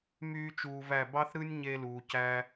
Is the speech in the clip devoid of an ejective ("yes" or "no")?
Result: yes